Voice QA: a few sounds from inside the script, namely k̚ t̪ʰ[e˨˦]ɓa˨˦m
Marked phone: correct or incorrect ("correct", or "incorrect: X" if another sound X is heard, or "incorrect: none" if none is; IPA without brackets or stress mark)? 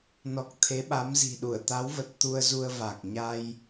correct